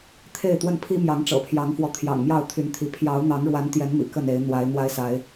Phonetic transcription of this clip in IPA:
t̪ʰ e˥˨ ɪ̯ t̪ w ə˥˨ n pʰ i˦ m j ɑ˨˦ ŋ ʈ͡ʂ ɤ̰˨˩ pʰ j ɑ˨˦ ŋ f w ɔ˨˦ t̪ʰ j ɑ̰˨˩ ŋ m j ɑ˥˨ ʊ̯ t̪ʰ y˨˦ n t̪ʰ i˨˦ pʰ j ɑ˨˦ ʊ̯ n̪ ɑ˨˦ ŋ ɻ w a˨˦ n t̪ j ɛ˨˦ n m ḭ˨˩ k ə˥˨ n e˨˦ ɪ̯ n̪ w a˨˦ ɪ̯ n̪ w a˦ ɪ̯ s a˨˦ ɪ̯

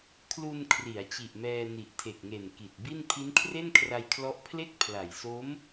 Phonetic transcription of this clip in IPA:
kʰ l u˧ n kʰ r i˩˦ a̯ t͡ɕ i˨˩ ʔ m ɛː˧ n i˨˩ ʔ tʰ e˨˩ k̚ ŋ e˨˩ n k i˨˩ t̚ b i˥˩ n pʰ i˦˥ n kʰ r e˥˩ n kʰ r a˧ j kʰ l ɔ˦˥ ʔ pʰ l e˥˩ k̚ pʰ l a˨˩ j s o˦˥ m

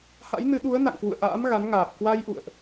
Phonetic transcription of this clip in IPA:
h a̰˧˥ j n ɨ˨˦ ɗ u˨˦ ə̯ n a̰˧˨ ŋ k w ṵ˧˨ ə̯ ʔ a̰ː˧˥ m ɣ a˨˦ n ŋ aː˨˩ p̚ k w a˧ j ʔ ṵ˧˨ ə̯ ʔ

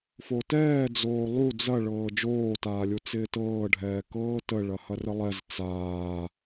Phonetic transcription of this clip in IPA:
f o t ɛː d͡z oː lˠ u d͡z ɐ ɭ ɤː d͡ʒ oː t aː lʲ u t͡s ɪː t ɤː ɖʱ ɛː k ɤː t ə ɭ ɐ h ɐ r ə lˠ ɛ z t͡s aː

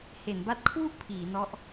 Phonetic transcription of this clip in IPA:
h e˩˦ n b a˦˥ t̚ kʰ w u˥˩ ʔ pʰ iː˩˦ n ɔ˦˥ ʔ

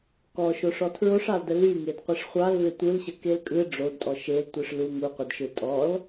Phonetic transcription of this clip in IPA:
k ɔ ʃ o ʂ ɔ tʰ ɹ o ʂ ɑ l d ə l y ŋ e d qʷ ə ʂ χʷ ɑ l v e tʷ ɯ l ɕ ə k e l kʼ ɯ ɖ͡ʐ o d tʼ ɔ ʃ e l tʷ ɯ ʂ l u ŋ u qʷ ə d ʃ ɯ tʼ ɔ l

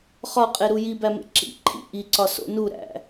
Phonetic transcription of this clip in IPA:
χ ɒ qʼ e ɾ u j i b æ m ḛ ǁ ḭ ǃʰ ḭ ʔ i ǀ ɒ s o̰ n u ɾ æ̰

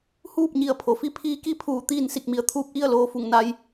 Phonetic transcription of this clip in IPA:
h uː˥˨ p̚ ɲ i˧˩ ə̯ pʰ o˩ f i˧˥ pʰ iː˧˥ k i˧˥ pʰ uː˧˩ t̪ iː˥˨ n s i˧˩ k̚ m i˩˧ ə̯ t̪ʰ uː˧ p̚ ʔ i˥˨ ə̯ l oː˧ f u˧˩ ŋ n a˧ j

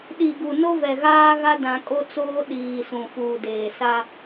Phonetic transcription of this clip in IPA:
ɗ i˨ ɡ u˨ n o˦ v ɛ˨ ɣ aː˦ ɣ a˦ d ã˦ kʼ o˦ t͡s oː˦ ɗ iː˨ s ũ˨ f uː˨ d eː˨ s a˦

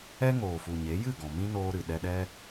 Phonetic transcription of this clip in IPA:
ɛ˦ ŋ oː˨ f u˨ ɲ e˨˦ j ɨ˦˨ ɡ ɔ̃˨ m ĩ˦ n oː˧ ɾ ɨ˨ ɗ ɛ˧ ɗ ɛ˦

